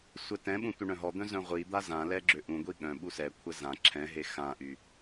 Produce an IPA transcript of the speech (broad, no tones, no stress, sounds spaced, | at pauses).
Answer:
sʷ ɛ t ɛ̃ ɓ ũ tʷ œ ɳ œ̃ ɦ ɔ d̪ œ̃ z œ̃ ʁʷ i d̪ a z ã l ɛ ɡ͡ǁ ø ʔ ũ ɡʷ i ɠ œ̃ ɓ u s ɛ kʷʰ ɛ z ã ǁʰ ɛ̃ ɦ e x ã ʔ y